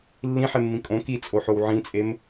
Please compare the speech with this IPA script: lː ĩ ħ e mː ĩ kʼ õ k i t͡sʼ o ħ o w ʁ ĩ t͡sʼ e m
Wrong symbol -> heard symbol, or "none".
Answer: ʁ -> ʕ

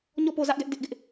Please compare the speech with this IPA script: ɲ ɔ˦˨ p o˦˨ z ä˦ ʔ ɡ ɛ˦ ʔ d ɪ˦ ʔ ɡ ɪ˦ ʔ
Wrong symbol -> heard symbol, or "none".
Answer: none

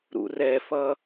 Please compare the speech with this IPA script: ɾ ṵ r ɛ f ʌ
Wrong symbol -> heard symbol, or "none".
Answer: none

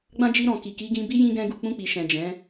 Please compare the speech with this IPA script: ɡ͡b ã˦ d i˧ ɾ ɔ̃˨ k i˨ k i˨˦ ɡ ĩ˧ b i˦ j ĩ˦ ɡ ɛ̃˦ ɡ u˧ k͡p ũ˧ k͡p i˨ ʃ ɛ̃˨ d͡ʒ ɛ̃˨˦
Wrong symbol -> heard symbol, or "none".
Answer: d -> d͡ʒ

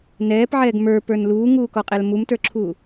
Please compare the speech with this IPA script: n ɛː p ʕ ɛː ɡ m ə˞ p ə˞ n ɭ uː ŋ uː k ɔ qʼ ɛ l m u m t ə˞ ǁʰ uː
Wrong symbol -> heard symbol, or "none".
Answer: ɭ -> l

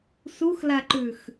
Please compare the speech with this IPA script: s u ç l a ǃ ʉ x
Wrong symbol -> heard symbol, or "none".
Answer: ç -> x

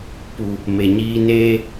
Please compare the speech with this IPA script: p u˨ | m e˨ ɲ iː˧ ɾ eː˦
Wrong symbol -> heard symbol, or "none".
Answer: ɾ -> n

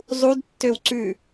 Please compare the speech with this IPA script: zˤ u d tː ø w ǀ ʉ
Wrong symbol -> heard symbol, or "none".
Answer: none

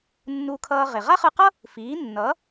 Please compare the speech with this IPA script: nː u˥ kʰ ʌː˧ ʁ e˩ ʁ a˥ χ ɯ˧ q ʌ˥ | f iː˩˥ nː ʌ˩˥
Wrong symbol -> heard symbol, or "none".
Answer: u˥ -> u˧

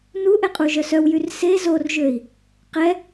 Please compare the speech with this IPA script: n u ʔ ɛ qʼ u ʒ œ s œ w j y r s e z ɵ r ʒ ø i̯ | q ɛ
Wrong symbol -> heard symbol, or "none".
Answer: ɵ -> o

